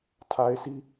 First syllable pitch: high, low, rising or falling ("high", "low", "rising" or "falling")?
low